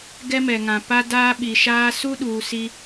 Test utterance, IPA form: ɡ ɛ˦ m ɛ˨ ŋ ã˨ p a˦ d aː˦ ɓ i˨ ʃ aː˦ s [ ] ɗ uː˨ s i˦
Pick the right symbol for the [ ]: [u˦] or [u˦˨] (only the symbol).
u˦